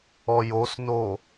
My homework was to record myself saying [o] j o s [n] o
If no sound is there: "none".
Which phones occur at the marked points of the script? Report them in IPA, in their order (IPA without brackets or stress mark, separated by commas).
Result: ɔ, n